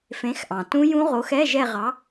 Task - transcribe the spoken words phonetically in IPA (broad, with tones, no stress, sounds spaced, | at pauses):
f ẽ˨˥ x ʔ ɑ̃˩ t ũ˦˥ j ũ˦˥ ʁ o˨˥ x ɛ˧˥˧ ʒ ɛ˦˨ ʁ ɑ˨˥